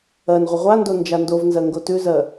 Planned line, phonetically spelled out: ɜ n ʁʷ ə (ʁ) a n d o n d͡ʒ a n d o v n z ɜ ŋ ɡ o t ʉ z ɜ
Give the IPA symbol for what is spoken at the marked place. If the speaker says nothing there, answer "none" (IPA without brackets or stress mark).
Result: ʁʷ